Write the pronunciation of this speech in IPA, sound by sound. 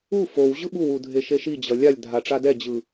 u f o w ʑ ɯ ɓ u w u dʱ e ʃ e ʃ i d͡ʑ ʌ lʲ a lʲ dʱ a ʈ͡ʂ a d ɛ d͡ʑ ɯ

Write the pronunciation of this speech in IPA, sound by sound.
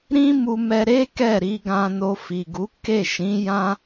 ɾ ĩ˦ m u˧ m ɛ˧ ɾ e˦ k ɛ˦˨ ɾ i˧ ɡ ã˧ n o˧ f i˨ ɡ u˨˦ k e˦˨ ʃ ĩ˨˦ j ã˦

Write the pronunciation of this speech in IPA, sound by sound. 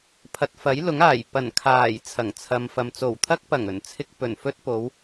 pʰ ɐ˨ t̚ f ɐ˨˥ j l ʊ˨˥ ŋ aː˨˩ j p ɐ˨˩ n kʰ aː˨˩ j t͡sʰ ɐ˨˩ ŋ t͡sʰ ɐ˨ m f ɐ˨ m t͡s o˨˩ w t̪ʰ ɐ˧ k̚ p ɐ˨˩ ŋ ɵ˨˩ n t͡sʰ ɪ˧ k̚ p ɵ˨˩ n f ɵ˧ t̚ p o˨˧ w

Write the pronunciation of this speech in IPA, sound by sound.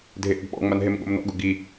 dʱ e ʔ u ɡ ɓ ɔ̰ ŋ͡m a n ɦ e m ɠ o̰ m n ɔ̰ ɡ ʊ ɡ i

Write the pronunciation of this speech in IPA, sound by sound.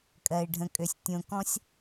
kʼ ɜ˨ ɪ̯ ɖʱ ə̃˨ kʼ ø˨ sʲ tʲ õ˨ k ɔ̃˦ sʲ

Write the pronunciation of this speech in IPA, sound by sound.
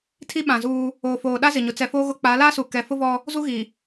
tʰ i˦ ɓ ã˨ z uː˦ | oː˨ f oː˨ ɗ a˦ z ɪ˨ ɲ ʊ˨ t͡s ɛ˨ f oː˦ ɣ ʊ˦ k͡p a˨˦ l aː˦ s u˨ k ɛ˨ f ʊ˦ v ɔ˦ | z u˦ ɣ i˨

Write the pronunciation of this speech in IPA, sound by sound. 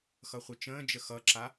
x ʌ χʷ ə t͡ʃ ə̃ː d͡ʒ ə x ʌ ǁ a

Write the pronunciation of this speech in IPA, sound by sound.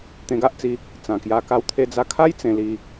t̪ ẽ˧ ɡ a˦ ʔ t͡s i˧ | t͡s ã˨˩ k j a˧ k a˦ w t̪ʰ e˦ d͡z a˧ kʰ a˦ j t͡s ẽ˧ l i˧

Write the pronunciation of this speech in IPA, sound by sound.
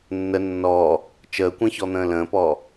nː ə nː ɔː | t͡ʃ əː kʷ ɛ̃ ç ɔ n̪ ə̃ː l ə̃ː p ɔː

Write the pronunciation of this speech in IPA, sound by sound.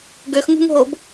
ɡ ø x ŋ ṳ ŋ ɦ o b

